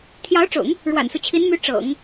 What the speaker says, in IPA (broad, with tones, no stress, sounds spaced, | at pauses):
t̪ʰ j ɑ˧˥ ʊ̯ ʈ͡ʂ ʊ̰˨˩˦ ŋ | ɻ w a̰˨˩ n s u˦ t͡ɕʰ i˧˥ n m y˧˥ ʈ͡ʂ ɤ̰˨˩˦ ŋ